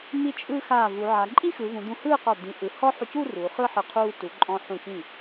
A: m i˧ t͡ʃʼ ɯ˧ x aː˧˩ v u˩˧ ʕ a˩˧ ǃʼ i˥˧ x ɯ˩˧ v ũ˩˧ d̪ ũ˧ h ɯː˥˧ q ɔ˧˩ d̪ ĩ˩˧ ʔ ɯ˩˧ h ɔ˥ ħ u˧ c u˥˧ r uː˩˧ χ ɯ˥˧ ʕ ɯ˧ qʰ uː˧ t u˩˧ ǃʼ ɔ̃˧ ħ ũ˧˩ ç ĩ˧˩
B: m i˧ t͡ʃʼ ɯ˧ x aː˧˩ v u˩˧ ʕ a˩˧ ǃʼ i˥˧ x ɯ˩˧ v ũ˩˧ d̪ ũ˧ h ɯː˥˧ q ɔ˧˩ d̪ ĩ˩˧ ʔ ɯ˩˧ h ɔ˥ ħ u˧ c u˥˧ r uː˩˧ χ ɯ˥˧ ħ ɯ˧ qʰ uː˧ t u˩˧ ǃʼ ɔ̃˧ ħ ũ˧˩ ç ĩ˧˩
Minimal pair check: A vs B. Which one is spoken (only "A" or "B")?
B